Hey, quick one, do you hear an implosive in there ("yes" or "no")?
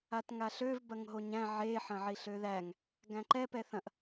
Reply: no